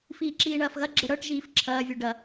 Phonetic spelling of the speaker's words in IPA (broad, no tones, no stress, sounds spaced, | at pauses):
f iː ǁ iː ɳ ɐː f ɣ ɐ ɡ͡ǁ ə ɽ ɤ ʈ ʒ iː f ǁʰ ɐː vʲ u ɖ ɐ